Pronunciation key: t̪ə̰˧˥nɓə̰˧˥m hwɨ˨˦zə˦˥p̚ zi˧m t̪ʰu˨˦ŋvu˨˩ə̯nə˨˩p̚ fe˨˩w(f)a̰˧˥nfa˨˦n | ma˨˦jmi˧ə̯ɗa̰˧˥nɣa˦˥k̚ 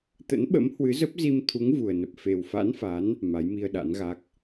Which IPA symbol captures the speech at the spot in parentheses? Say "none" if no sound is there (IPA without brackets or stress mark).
f